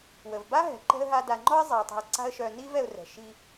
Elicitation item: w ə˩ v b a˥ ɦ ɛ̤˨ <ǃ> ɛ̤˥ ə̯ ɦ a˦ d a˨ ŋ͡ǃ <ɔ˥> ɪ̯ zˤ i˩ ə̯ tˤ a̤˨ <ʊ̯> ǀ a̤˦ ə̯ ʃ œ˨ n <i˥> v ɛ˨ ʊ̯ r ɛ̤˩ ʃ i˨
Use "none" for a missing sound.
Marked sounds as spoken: ǃ, ɔ˥, ə̯, i˥

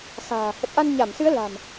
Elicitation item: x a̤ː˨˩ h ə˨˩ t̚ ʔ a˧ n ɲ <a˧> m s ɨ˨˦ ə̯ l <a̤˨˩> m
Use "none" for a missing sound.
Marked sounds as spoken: a˧˩, a̤˨˩

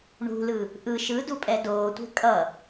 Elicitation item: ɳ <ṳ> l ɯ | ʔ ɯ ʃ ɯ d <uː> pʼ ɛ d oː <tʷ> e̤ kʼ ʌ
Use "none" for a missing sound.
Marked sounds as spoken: ṳ, u, tʷ

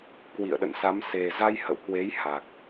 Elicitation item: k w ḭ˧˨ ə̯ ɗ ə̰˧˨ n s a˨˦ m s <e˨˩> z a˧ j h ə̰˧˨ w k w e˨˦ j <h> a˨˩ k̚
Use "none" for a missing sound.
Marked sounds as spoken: e˨˩, h

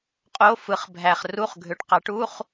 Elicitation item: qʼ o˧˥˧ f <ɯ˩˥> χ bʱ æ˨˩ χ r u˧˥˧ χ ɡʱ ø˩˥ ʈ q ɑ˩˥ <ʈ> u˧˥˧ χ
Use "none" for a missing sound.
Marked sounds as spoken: ɯ˩˥, ʈ

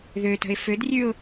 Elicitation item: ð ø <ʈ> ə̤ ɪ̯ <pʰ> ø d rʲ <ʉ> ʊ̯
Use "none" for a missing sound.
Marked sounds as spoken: t, f, ʉ

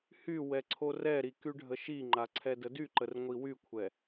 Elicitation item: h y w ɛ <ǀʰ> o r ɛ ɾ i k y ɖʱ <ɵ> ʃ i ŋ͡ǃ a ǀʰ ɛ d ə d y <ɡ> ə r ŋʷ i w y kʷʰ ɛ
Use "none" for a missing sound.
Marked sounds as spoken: ǀʰ, ə, ǃ

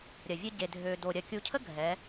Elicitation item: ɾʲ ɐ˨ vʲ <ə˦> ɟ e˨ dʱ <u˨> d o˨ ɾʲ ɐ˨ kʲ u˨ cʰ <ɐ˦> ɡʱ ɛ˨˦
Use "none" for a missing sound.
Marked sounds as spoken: ə˦, ø˨, ə˦

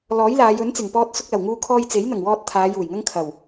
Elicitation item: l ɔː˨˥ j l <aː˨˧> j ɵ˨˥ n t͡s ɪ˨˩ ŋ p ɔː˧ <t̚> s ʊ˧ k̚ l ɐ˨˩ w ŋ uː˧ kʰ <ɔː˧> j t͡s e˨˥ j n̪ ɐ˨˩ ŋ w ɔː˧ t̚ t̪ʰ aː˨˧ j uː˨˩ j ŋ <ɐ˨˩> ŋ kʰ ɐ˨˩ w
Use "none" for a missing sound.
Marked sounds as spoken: aː˨˧, t̚, ɔː˧, ɐ˥

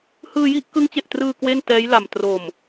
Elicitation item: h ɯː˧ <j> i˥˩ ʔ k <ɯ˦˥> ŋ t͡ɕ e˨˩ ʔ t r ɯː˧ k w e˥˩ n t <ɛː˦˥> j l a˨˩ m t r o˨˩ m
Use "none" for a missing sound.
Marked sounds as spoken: j, ɯ˦˥, ɛː˦˥

